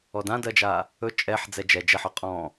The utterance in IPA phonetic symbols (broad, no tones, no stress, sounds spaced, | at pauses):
ɔ d ã d ɜ d͡ʒ a | ɵ t͡ʃʼ ɛ ħ d͡z ɛ d͡ʒ ɛ d͡ʒ ɛ ħ ɔ qʼ ɔ̃